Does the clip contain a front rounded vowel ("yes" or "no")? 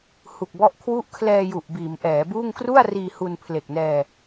no